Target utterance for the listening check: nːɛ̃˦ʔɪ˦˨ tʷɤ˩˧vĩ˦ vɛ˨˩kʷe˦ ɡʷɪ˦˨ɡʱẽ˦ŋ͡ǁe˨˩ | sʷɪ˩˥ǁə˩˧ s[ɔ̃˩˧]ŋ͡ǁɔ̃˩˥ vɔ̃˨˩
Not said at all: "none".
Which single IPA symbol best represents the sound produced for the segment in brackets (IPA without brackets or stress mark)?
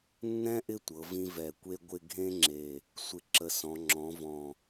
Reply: ɔ̃˩˧